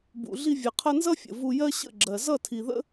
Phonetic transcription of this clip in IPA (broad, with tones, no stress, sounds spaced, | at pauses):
b ṵ˨ ɮ i˧ vʲ ʌ˨ qʰ ʌ˧ n z ʌ˦ fʲ ə̰˨ v u˧ j ɜ˦ ɕ ə̰˦˨ ɡ͡ǁ ɜ˨ z ʌ˦˨ tʰ i˨ ð ə̰˦